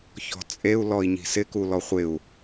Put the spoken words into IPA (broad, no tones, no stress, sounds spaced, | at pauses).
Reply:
ç ɔ̤ t͡sʼ e u̯ l ɔ i̯ ɲ i̤ s ɪ k u l ɔ χʷ ɪ u̯